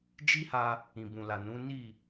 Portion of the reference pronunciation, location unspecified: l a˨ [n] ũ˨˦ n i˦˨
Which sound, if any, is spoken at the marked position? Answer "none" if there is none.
n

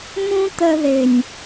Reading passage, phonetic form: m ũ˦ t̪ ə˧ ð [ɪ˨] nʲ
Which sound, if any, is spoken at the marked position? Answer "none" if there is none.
ɪ˨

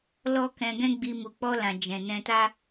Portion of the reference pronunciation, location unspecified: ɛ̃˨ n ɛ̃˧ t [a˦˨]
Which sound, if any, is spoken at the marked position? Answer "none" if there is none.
a˦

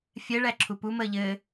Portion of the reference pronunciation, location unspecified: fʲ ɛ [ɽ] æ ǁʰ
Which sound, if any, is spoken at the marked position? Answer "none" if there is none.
ɭ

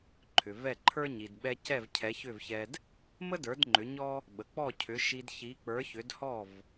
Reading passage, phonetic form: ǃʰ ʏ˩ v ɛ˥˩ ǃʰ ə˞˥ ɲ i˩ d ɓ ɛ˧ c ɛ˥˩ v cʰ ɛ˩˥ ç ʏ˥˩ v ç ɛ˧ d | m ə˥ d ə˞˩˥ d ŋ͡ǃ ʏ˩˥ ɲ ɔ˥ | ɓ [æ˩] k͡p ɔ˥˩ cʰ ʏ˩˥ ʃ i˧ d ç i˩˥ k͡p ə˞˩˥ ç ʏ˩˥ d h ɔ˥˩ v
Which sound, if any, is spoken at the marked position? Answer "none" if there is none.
ə˩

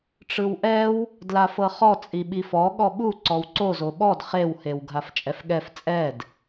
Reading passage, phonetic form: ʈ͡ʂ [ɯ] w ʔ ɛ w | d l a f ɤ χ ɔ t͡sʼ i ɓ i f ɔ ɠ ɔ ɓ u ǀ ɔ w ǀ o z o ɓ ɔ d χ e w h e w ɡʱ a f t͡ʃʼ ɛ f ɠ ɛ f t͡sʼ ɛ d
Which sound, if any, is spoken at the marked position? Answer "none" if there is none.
ɯ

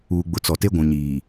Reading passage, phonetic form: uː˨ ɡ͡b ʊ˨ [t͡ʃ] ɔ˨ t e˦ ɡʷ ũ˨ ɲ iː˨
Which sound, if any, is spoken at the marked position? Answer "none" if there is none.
t͡s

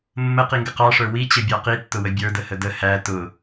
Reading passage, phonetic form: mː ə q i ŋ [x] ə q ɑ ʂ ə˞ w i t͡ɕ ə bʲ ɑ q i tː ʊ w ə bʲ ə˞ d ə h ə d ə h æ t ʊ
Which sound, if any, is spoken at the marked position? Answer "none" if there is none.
ɡ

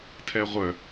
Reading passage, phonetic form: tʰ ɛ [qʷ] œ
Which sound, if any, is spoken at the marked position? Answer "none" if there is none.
ʁʷ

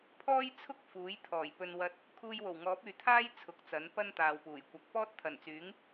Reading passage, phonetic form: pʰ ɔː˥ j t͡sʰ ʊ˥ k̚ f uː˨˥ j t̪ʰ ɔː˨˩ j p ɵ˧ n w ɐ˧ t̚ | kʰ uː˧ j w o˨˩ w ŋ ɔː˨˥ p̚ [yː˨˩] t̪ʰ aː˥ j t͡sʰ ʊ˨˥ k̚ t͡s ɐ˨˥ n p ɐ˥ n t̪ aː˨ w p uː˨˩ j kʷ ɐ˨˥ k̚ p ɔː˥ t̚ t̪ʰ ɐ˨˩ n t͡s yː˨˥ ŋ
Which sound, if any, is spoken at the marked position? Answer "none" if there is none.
yː˨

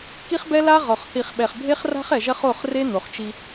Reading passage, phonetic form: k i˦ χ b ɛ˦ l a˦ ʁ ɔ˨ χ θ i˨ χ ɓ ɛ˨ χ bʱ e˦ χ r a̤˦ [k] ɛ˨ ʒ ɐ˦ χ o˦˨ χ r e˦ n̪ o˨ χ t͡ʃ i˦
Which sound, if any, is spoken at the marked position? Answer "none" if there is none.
χ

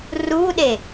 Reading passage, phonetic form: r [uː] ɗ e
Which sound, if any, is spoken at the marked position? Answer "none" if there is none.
uː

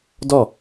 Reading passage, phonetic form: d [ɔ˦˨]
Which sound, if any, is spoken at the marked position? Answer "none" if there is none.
ɔ˦˨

